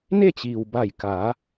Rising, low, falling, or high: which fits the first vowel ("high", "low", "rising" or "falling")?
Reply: falling